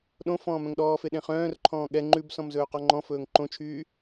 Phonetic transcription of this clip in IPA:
ɗ õ f ɔ̃ː m œ̃ ŋ ɗ ɔː f e ɗ ẽ χ œ̃ː r ǃʰ ɔ̃ː ɠ ɛ ŋ͡ǃ ʉ b s ɔ̃ m z ɵː q ɔ ŋ͡ǃ ɔ̃ f ɵː ŋ ǃ õ t͡ʃʰ yː

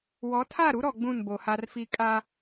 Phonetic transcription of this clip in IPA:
w ɔ˨˦ tʰ a˦˨ ɾ u˦ ɾ ɔ˨ ɡ͡b ũ˦˨ n b o˨ h a˦ r f i˦ kʼ a˦

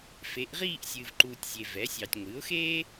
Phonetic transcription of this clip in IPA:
f e˩˥ ʔ ʁ iː˥˧ ʔ sʲ ɨː˨ v ǃ uː˨ tʲ zʲ e˨ v ɛ˩˥ sʲ ɑː˨ tʲ ŋʷ ɨː˩˥ ʊ̯ x eː˥

